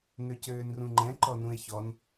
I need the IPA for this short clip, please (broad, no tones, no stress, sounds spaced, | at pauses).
n ø c øː n r ũ ŋ͡ǃ ɛ̃ ǃ ɔ n ũ e̯ ç ɔ n